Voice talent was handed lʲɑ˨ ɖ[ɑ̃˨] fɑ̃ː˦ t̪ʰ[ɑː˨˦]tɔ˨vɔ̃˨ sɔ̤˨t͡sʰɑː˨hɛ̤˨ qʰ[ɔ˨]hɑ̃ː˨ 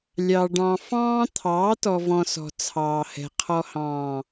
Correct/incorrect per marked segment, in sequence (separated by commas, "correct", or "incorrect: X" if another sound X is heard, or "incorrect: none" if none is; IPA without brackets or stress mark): correct, correct, correct